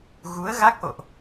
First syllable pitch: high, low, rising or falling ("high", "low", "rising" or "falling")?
rising